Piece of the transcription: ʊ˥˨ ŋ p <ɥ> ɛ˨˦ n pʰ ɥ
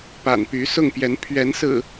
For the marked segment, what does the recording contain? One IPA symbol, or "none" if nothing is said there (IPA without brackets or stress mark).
j